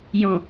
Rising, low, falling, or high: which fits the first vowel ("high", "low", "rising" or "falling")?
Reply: low